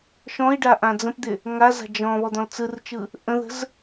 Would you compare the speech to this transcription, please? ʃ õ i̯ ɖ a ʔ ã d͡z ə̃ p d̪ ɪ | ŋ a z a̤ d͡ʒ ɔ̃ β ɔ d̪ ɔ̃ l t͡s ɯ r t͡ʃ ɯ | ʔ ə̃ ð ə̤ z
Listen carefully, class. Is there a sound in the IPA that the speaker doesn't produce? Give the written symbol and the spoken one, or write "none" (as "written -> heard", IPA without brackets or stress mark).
õ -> ɔ̃